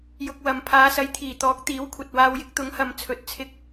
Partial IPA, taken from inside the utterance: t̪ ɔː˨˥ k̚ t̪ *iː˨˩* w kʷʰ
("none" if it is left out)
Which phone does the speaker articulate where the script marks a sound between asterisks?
iː˨˥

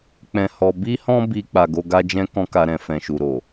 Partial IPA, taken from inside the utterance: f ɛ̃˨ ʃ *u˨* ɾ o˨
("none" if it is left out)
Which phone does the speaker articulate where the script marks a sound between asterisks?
u˨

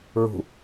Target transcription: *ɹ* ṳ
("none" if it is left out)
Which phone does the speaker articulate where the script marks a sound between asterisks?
ɹ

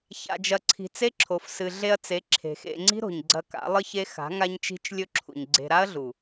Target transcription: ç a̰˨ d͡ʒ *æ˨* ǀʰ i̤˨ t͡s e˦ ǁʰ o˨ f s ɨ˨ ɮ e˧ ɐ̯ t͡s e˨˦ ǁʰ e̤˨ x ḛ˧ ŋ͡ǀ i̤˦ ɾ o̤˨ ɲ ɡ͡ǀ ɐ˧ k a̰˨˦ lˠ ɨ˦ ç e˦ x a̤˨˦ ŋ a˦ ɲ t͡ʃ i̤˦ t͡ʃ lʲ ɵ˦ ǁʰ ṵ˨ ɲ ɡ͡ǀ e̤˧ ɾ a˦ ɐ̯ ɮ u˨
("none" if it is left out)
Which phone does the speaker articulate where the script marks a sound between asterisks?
ɐ˨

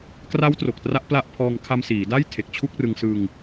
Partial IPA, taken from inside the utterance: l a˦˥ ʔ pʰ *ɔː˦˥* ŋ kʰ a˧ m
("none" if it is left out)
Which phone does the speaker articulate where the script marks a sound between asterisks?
ɔː˧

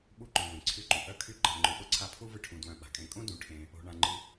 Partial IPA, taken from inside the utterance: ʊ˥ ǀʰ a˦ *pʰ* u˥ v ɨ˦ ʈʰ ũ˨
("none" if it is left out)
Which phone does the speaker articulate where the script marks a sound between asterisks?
pʰ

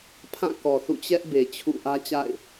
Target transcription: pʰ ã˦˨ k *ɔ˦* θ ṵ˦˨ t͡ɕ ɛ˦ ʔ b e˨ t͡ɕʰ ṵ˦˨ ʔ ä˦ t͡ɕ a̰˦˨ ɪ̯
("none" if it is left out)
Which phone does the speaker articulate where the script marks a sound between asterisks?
ɔ˨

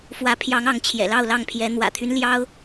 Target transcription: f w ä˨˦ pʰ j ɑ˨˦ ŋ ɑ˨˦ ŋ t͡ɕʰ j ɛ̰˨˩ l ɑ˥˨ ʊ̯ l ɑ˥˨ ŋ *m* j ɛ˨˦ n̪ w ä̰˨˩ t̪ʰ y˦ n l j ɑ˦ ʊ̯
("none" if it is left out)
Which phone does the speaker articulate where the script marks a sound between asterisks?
pʰ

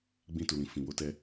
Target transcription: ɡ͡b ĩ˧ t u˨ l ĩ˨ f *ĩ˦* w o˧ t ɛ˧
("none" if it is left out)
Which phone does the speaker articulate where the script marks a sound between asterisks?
ĩ˨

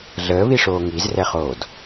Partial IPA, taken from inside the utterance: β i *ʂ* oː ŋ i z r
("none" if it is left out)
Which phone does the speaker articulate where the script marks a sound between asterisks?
ʂ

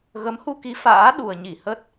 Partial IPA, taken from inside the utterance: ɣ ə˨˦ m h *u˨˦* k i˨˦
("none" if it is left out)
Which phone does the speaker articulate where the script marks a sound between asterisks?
u˧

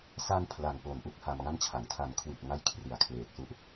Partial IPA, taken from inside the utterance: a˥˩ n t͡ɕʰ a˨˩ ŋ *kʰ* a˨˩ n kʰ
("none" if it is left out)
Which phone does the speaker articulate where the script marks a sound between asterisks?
tʰ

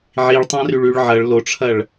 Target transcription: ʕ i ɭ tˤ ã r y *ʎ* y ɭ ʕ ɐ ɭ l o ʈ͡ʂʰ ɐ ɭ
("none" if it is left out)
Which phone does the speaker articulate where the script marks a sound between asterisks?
ɭ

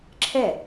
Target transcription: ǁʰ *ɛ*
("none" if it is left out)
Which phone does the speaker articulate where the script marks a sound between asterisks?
ɛ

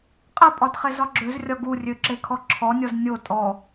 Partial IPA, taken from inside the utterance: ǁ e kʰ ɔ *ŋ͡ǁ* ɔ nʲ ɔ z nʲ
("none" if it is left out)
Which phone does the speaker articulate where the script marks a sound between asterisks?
ǁʰ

